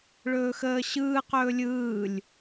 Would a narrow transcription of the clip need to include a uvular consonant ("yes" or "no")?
yes